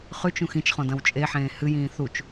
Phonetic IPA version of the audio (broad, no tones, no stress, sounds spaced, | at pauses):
χ ʉ t͡ʃ ũ x ĩ t͡ʃ χ õ d ɐ̃ w t͡ʃʼ e ħ ẽː h ɨ j ĩː θ u t͡ʃ